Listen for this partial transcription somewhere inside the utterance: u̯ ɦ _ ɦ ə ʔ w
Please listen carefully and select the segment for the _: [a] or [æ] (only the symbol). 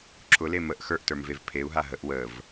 a